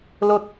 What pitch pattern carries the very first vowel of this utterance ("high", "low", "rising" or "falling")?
falling